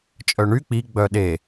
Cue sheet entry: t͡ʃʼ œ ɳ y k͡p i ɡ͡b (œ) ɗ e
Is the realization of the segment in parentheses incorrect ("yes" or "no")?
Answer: no